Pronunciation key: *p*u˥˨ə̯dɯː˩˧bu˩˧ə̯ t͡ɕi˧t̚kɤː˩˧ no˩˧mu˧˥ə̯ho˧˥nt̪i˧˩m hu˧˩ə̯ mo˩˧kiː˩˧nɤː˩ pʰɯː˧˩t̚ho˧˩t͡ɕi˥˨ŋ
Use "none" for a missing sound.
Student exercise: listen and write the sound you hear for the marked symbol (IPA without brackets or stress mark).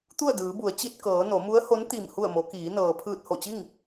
t̪